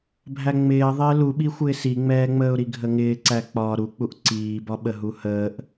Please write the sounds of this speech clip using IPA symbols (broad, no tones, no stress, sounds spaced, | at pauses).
bʱ æ ŋ͡m ɪː ə̯ ðˤ ɪː l u ɓ i xʷ ɪː s i ŋ͡m ɛː ŋ͡m əː ʊ̯ ɾ i ɡʱ ə ŋ ɪː ǀ æ k͡p ɒː ɾ u k͡p u ʔ ǀ iː b ɒ ɓ ə ɦ u h əː ʔ